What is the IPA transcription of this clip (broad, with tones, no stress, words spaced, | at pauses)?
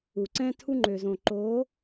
u˨ǀɛ̃˦ tʰu˦ŋ͡ǃø˨zõ˨ ǃo˨˦